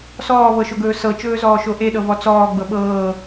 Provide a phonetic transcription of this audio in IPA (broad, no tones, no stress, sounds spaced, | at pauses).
s ɔː v ɤ ʃ o ɡ ɵː s ɤ t͡ʃ ɵː z ɔː ʃ o ʔ e ɗ ɤ v ɔ t͡s ɔː ɡ͡b ɤ ɓ ɤː